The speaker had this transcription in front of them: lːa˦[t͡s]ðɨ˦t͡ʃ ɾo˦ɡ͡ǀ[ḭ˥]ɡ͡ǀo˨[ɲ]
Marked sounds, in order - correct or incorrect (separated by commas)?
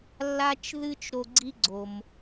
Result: incorrect, incorrect, incorrect